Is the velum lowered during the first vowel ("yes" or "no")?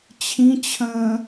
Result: yes